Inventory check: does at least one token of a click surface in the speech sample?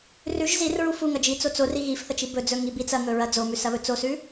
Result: no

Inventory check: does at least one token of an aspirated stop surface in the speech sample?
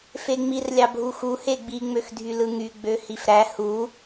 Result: no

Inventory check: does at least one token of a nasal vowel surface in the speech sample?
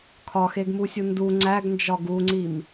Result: no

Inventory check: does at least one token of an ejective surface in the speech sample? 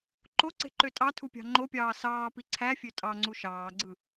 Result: yes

